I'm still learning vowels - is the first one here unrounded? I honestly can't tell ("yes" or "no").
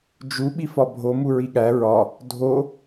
no